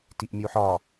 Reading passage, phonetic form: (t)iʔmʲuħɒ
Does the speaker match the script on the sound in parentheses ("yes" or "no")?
yes